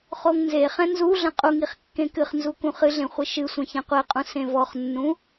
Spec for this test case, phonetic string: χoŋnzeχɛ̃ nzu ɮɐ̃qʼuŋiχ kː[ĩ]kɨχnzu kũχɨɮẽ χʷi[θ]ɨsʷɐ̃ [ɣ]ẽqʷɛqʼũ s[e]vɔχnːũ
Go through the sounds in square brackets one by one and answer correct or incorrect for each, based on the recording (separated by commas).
incorrect, incorrect, incorrect, incorrect